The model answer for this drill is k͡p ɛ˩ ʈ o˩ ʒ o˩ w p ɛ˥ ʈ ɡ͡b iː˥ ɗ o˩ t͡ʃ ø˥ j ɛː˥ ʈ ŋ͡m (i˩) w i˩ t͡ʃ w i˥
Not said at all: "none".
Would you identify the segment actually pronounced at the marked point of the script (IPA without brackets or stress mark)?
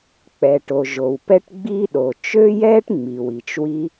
i˩